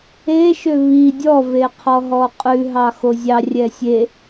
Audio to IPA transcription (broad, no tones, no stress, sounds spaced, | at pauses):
e ʃ ø β i dʲ ɔ v e qʰ ɔ ɦ ɔ qʼ ʉ ɦ ɑ x o zʲ ɑ rʲ ɛ sʲ e